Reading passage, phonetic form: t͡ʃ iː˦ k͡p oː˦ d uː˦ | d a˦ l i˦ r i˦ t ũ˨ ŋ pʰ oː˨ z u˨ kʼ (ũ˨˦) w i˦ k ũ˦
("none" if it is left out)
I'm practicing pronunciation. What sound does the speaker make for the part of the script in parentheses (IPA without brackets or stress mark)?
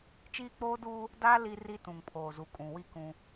ũ˨